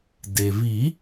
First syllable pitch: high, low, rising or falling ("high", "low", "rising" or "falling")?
low